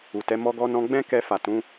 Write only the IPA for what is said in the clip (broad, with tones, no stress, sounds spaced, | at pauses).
u˨ t ɛ˨˦ m ɔ˧ ɡ ɔ˧ n ɔ̃˧ ɡ͡b ɛ̃˦ k ɛ˧ f a˨ t ũ˨˦